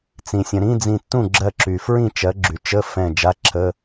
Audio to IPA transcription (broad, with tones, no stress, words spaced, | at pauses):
t͡sĩ˩sʲə̃˩ɾĩ˧˥˧d͡zĩ˧˩ tːũ˥˩ɡ͡ǁɜ˧˩ǁy˩fɹĩ˥˩ t͡ʃɜ˩˥ɡ͡ǁy˩ t͡ʃə˧˥˧ fɛ̃˧˩ d͡ʒa˧˥˧ǁʰə˧˥˧